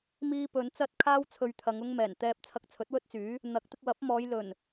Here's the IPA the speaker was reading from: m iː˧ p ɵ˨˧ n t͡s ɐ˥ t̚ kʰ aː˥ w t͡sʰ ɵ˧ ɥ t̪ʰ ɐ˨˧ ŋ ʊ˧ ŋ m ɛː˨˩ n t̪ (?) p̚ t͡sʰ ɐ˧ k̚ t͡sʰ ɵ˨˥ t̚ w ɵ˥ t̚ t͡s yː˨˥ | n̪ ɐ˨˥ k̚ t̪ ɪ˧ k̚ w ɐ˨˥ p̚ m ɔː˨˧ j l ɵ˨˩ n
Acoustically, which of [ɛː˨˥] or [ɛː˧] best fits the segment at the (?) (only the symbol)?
ɛː˧